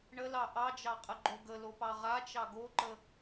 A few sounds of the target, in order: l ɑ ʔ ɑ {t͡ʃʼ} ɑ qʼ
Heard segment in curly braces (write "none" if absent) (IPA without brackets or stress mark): d͡ʒ